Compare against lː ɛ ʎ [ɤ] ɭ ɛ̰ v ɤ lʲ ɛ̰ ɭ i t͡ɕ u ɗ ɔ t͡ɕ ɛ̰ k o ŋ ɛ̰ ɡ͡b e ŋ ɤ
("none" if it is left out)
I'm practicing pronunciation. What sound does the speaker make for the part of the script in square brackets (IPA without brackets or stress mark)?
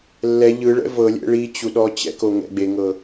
ɯ